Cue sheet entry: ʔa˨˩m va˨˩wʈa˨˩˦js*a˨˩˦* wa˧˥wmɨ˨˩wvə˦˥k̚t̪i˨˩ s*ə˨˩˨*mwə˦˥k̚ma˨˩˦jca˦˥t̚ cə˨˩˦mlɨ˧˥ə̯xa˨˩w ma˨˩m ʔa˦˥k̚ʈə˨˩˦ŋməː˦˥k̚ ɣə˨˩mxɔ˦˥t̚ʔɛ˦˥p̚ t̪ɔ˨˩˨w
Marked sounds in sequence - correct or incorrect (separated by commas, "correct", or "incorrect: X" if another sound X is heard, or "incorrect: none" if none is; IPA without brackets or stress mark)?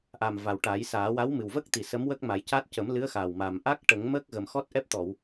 incorrect: aː˨˩˦, incorrect: ə˧˥